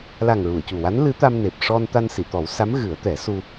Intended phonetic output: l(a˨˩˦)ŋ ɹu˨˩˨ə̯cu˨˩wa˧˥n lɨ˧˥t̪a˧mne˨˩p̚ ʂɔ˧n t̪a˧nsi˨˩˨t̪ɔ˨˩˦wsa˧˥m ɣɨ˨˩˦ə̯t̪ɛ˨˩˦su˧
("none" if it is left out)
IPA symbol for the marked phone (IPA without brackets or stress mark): a˨˩